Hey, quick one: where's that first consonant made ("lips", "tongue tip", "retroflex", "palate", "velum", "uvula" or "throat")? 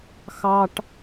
velum